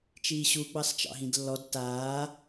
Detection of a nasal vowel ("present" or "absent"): present